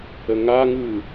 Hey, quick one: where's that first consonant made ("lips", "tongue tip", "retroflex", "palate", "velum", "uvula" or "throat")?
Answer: velum